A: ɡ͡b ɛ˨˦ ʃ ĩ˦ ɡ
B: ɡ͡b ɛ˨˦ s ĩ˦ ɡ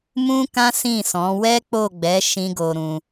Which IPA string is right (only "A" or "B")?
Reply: A